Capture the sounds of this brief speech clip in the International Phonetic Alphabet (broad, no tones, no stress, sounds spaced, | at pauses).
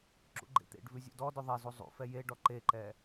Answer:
ǁ ṵ ɡ͡ǃ ḛ t̪ ḛ ɖ v ʉ zʲ ṵ d ɔ d ʉ ðˤ e z u zˤ ṵ f ɛ j e ɖ ɔ ǃ e ǃ ɛ